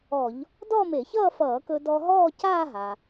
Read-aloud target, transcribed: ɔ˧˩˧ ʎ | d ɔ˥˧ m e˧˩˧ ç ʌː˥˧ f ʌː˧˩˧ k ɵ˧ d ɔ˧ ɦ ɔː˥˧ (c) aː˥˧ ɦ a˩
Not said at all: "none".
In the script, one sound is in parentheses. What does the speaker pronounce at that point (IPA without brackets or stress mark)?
c